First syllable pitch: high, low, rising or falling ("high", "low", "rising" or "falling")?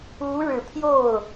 rising